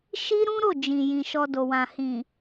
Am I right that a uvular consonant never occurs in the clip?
yes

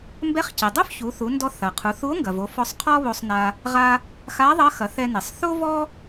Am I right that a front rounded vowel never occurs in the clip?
yes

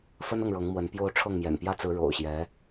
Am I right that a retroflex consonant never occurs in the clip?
no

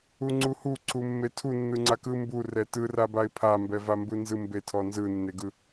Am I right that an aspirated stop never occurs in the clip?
no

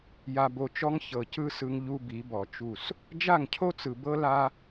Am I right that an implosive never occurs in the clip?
yes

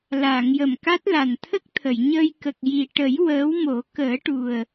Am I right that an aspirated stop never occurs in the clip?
no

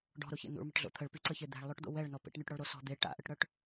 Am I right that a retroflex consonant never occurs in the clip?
no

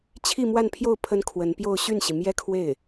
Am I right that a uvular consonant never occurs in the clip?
yes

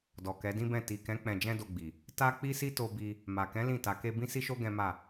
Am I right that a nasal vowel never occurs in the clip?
no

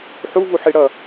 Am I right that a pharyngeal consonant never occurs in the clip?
no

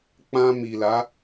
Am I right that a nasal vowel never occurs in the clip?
no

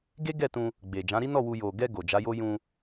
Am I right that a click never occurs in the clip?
yes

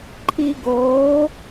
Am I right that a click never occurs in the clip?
no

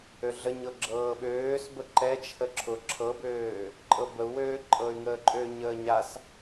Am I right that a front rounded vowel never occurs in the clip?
no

